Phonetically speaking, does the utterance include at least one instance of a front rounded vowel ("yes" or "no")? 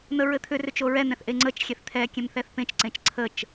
yes